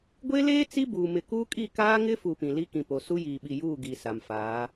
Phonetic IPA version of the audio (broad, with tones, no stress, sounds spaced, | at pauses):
ɡʷ e˦ l eː˦ t͡s i˦ b uː˨ m ɪ˨ k uː˦ kʼ i˦˨ k aː˦ ŋ ɪ˦ f u˨ p ĩ˨ l i˦ k ĩ˨ p o˨ s u˦ j iː˨ ɓ i˨ j uː˦˨ ɡ i˨ s a˨ m f aː˨˦